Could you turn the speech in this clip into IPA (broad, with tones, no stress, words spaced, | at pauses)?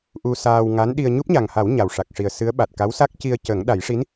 ʔu˧saː˧w ŋa˧˥nɗi˧ə̯ ɲu˦˥p̚ɲa˨˩ŋha˨˩˦w ɲa˨˩wʂa˨˩k̚ʂi˨˩ə̯sɨ˧˥ə̯ ɓa˨˩t̚ ka˧˥wsa˦˥k̚ ci˧ə̯cə˨˩˦ŋ ɗa˨˩˦jʂi˧˥n